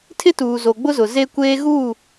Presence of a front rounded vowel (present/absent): absent